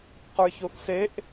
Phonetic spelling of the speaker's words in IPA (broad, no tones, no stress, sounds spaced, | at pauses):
q ə˞ ç o θ s e ʔ